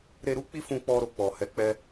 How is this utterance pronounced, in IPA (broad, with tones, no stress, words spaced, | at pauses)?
ɾe˧ɾu˦k͡pi˦fũ˧ k͡pɔ˧ɾo˨k͡pɔ˨ hɛ˨˦k͡pɛ˧